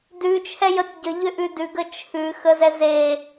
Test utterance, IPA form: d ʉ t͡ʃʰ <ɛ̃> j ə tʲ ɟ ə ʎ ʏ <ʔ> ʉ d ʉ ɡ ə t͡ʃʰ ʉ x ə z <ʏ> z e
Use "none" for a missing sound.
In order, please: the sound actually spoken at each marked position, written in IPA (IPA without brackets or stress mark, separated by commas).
ɛ, ʔ, ɛ